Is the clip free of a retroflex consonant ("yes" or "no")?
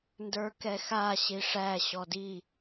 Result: no